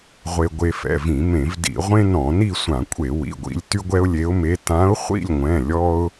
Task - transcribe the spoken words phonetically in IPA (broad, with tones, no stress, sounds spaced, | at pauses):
ʁʷ e˧ ɡʷ e˧ f ɛ̰˩˧˩ v ĩ˧˩˧ m ẽ˧˩˧ v d ḭ˧˩˧ ʁʷ ẽ˥ n ɔ̃˧˩˧ n i˥˧ sʷ ã˧˩˧ kʷʼ e˧˩˧ w ḭ˩˧˩ ɡʷ ḭ˧ lʲ t y˥ ɡʷ ɛ˥ ʊ̯ lʲ e˧˥ ʊ̯ m e˧˥ t ã˧˥ ʊ̯ χʷ ḭ˥˧ lʲ ŋʷ ɛ̃˩˧˩ lʲ ɔ˥ ʊ̯